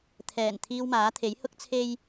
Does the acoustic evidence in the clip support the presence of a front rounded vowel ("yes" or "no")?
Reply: no